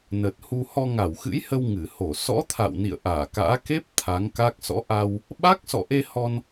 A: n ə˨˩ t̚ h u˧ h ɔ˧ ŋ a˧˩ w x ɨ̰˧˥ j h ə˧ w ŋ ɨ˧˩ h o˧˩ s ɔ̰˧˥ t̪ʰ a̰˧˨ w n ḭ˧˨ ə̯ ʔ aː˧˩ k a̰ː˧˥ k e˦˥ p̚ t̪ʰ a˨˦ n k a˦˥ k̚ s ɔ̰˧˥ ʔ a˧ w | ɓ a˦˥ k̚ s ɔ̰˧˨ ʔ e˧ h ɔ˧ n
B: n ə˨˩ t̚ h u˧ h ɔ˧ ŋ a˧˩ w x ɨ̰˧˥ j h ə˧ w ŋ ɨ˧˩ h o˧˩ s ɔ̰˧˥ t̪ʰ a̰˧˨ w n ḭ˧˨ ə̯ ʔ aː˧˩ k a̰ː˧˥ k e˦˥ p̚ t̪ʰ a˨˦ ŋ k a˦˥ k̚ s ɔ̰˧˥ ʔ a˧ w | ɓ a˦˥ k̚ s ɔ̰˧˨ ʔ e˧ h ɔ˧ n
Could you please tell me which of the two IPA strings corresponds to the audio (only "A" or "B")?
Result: B